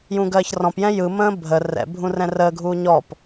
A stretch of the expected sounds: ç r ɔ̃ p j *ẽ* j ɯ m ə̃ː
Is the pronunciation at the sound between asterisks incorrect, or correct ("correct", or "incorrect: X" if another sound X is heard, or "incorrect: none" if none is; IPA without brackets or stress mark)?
incorrect: ɛ̃